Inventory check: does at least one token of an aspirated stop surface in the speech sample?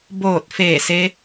no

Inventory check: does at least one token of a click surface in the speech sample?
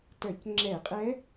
yes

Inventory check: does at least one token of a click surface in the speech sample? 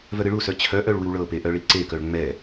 yes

